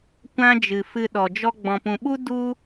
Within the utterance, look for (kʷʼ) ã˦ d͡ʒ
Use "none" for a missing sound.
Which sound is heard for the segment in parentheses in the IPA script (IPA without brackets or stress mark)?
kʷ